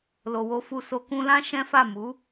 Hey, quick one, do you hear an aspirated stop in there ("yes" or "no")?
no